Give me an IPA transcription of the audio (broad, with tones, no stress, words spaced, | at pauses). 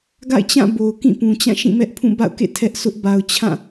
ɡa̰˦˨ɪ̯t͡ɕã˦˨ bo˨ʊ̯kĩ˦˨pũ˨t͡ɕã˦˨ ʃĩ˦˨mɛ˦ʔ pʰũ˦˨ba̰˦˨ʊ̯kḛ˦˨ tʰɛ˦ʔsʊ˦ʔ ba˨ʊ̯t͡ɕʰã˦˨